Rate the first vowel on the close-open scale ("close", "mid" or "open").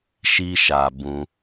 close